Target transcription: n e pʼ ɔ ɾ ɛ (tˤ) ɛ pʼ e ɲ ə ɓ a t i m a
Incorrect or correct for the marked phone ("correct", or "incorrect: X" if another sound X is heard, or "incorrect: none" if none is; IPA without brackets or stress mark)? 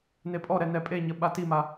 incorrect: n